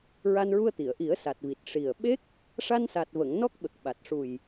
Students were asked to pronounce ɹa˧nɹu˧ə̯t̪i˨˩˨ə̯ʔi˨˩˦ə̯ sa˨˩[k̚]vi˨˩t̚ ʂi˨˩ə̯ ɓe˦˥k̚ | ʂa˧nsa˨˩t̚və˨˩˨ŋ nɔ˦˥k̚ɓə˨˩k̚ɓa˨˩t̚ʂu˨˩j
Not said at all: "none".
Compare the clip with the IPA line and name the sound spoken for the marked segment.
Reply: t̚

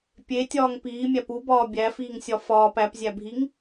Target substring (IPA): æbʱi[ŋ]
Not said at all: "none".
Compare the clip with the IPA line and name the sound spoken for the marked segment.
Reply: ŋ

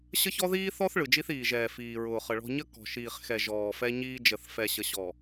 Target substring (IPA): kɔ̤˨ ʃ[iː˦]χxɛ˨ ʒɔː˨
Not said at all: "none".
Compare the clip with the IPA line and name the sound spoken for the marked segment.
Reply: iː˨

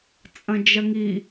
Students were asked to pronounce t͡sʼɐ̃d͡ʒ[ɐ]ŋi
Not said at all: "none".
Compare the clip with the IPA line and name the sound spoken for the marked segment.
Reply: ɐ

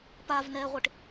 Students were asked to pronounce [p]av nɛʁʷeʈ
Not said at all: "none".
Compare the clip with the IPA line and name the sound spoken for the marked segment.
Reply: p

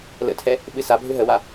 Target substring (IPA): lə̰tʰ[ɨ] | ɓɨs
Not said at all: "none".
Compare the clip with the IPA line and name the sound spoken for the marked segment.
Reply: ɛ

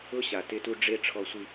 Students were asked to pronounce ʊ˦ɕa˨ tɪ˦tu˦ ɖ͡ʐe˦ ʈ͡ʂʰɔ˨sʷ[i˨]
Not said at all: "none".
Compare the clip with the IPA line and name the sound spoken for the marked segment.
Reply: i˨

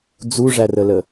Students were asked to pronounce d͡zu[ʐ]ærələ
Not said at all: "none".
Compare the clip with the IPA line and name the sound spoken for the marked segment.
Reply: ʐ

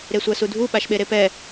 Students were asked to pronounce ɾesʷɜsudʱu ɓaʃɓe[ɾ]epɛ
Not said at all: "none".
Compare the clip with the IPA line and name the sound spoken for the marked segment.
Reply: ɾ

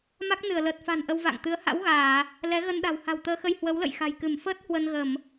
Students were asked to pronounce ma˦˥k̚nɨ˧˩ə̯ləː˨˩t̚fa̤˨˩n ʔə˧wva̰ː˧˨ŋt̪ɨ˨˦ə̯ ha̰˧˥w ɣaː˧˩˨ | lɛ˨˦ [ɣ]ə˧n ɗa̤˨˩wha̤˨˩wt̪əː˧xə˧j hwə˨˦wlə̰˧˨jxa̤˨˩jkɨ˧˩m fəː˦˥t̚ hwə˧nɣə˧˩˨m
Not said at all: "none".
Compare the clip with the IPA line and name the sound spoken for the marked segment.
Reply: ɣ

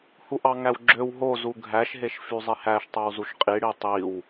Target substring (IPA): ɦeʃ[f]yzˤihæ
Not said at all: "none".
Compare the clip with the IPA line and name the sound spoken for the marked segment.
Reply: f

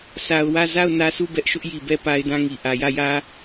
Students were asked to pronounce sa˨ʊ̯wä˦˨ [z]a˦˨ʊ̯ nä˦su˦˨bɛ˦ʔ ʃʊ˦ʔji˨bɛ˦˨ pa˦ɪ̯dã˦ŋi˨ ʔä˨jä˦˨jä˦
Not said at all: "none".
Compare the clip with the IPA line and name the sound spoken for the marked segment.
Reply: z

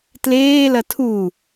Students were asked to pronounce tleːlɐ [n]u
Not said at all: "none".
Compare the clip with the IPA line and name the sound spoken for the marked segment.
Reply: tʰ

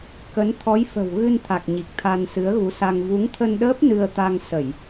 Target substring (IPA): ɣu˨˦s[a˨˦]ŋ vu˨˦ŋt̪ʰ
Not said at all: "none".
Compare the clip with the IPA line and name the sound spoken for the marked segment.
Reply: a˧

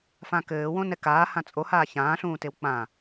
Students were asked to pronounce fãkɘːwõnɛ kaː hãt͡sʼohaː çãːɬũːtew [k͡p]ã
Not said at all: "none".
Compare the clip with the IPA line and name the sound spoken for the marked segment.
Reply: k͡p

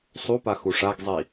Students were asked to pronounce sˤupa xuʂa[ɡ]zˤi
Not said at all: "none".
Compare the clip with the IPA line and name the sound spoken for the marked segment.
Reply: ɡ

